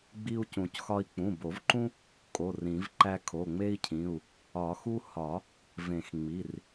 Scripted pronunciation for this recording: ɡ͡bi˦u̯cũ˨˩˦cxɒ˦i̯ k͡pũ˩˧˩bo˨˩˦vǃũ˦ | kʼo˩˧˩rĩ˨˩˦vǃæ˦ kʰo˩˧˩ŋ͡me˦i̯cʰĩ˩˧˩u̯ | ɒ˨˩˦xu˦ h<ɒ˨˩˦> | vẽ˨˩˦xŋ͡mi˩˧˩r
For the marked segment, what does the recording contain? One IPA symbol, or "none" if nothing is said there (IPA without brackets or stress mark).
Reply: ɒ˨˩˦